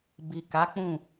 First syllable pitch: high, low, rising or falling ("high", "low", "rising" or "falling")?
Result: low